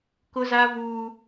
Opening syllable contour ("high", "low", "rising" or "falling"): high